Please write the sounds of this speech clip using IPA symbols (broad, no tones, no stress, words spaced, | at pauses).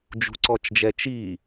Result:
d͡ʒṳǀɔt͡ʃd͡ʒɛt͡ʃi